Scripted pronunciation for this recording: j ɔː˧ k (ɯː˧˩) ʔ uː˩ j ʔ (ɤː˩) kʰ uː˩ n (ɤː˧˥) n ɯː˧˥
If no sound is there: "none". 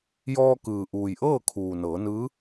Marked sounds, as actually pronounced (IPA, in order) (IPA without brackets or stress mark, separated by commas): ɯː˩, ɤː˥˨, ɤː˩˧